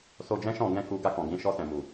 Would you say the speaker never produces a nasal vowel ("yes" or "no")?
no